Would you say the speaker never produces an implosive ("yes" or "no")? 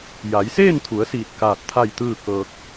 yes